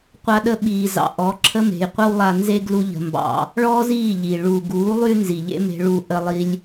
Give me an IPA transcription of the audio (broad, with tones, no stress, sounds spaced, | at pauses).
qʷ a˧ ɗ ə˧ ɓ iː˨ z ɑ̰˨ ʔ ɔ˨˦ ǁʰ ə˦ m e̤˨ j qʷ ə˦ w lˠ a˧ n z e˦ ɡ l u˧ ʎ ə̤˨ m b ɑ̰˨ | ɭ ɔː˦ z iː˦˨ ʎ iː˨ ɭ uː˨ ɡ uː˨˦ lˠ y˦ n z i˨ ʎ ḛ˦ m e̤˧ ɭ u˧ ʔ ə˦ lˠ i˧ lʲ